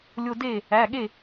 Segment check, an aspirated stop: absent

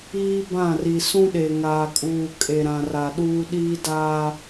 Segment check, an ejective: present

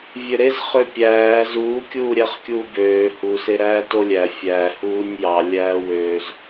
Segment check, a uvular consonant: present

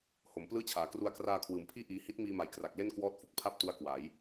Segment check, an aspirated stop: present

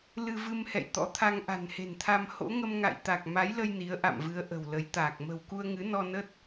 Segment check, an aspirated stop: present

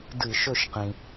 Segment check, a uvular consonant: present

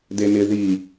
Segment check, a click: absent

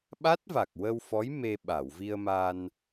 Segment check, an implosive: present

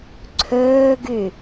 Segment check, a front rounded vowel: present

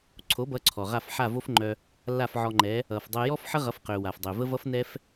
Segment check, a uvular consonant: present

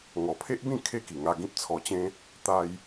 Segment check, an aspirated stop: present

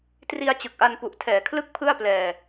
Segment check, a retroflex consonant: absent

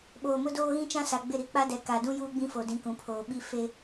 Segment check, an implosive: present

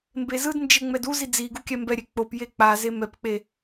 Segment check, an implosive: absent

